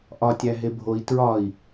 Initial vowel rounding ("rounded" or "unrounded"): rounded